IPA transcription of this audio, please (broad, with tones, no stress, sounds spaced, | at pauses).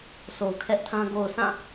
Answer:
sʰ o˨ ʊ̯ kʰ ɛ˦ ʔ tʰ ã˦ ɡ o˨ ʊ̯ s ã˦˨